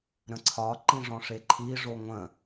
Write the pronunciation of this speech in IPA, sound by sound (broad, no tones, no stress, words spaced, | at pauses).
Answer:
ɾə̃ǀʰɒ ǃĩʐɔ̃ʂeǃʰi ʐoŋʷə̃